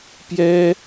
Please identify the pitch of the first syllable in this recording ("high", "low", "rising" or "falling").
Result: high